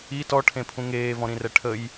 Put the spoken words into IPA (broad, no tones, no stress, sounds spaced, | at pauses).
i t ɔ ʈʰ ẽ pʰ ũ ŋ eː v ɔ̃ ɾ ĩ r ɛ ʈʰ ə j